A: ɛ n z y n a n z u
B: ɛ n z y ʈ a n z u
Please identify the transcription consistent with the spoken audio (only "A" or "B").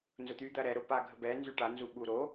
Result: B